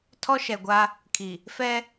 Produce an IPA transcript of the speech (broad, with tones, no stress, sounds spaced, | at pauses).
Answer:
tʰ ɔ˦ ʃ ɛ˨ ɡʷ a˦ | kʰ i˨ | f ɛ˦